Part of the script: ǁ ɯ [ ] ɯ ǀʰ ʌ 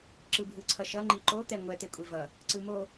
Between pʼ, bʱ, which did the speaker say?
bʱ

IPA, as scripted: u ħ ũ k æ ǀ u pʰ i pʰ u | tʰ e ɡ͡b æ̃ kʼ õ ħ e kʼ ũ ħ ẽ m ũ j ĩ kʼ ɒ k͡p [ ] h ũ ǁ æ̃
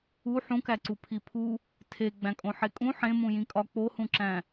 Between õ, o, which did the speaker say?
o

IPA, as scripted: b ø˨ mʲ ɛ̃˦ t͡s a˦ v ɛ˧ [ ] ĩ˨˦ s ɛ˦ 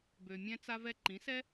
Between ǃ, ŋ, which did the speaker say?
ǃ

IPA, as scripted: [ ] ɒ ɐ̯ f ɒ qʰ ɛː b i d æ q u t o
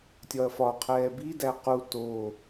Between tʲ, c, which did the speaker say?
tʲ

